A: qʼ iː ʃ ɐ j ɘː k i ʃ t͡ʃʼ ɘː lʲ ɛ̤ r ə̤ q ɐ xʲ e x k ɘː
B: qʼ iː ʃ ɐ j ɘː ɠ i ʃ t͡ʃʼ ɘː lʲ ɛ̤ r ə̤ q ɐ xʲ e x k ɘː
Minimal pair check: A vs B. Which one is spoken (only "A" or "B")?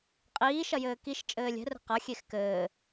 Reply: A